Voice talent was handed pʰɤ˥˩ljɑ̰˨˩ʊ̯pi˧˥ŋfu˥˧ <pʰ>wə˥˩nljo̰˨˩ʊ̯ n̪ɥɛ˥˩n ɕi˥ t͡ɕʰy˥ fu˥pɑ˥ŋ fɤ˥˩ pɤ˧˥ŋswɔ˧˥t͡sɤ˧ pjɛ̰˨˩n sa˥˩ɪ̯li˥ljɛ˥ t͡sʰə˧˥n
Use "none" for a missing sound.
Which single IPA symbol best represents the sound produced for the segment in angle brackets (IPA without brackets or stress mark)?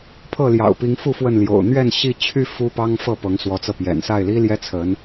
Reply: f